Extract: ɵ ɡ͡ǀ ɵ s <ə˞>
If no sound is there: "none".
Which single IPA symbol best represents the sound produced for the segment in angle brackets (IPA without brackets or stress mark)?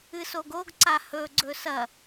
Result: ɐ